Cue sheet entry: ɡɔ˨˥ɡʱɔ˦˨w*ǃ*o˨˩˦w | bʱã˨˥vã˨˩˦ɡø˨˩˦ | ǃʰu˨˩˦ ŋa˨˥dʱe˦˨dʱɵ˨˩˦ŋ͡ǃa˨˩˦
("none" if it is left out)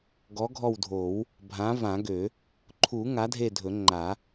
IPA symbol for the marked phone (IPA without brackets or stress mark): dʱ